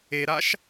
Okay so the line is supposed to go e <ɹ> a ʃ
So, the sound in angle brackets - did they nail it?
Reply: no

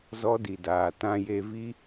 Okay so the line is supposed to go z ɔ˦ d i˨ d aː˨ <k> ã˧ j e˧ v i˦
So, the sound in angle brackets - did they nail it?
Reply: no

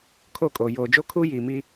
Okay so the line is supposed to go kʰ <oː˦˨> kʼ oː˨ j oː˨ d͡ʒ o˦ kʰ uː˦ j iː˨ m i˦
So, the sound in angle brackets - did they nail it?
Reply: no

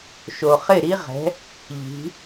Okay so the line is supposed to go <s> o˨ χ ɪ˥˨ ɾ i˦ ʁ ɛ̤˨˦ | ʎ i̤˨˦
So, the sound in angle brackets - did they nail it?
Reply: no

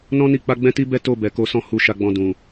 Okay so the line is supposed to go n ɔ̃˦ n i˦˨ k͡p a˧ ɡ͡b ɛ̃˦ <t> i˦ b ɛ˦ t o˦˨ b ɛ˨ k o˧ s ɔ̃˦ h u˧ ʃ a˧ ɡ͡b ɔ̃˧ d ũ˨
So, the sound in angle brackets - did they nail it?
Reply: yes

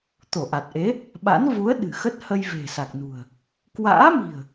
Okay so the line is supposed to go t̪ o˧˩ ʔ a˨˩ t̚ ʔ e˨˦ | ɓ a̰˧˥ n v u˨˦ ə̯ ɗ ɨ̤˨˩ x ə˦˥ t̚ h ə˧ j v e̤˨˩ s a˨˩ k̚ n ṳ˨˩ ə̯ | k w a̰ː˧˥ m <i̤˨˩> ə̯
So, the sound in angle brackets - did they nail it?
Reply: yes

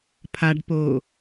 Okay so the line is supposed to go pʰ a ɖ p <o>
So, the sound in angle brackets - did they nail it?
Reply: yes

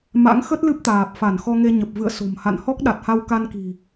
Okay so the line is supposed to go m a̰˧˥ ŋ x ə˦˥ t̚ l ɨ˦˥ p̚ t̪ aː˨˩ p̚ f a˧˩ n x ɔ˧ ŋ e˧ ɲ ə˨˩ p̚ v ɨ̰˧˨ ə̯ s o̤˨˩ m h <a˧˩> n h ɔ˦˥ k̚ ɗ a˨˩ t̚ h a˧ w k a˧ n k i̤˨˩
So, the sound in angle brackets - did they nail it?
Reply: no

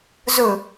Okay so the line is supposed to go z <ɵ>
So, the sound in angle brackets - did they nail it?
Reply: yes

